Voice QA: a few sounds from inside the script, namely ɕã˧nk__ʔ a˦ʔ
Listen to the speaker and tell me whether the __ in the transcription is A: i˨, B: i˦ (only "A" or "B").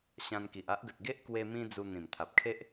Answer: A